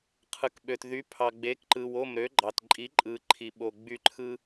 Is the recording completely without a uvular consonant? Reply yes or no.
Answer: no